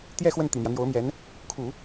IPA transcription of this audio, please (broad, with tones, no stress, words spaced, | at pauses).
t̪jɛ˥˧xwə˥˩n t̪i˨˩mjä˦n̪jo˧˥ʊ̯mjɛ˧˥n | kʰu˨˩˦